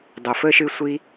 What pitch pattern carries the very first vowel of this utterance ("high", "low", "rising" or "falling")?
low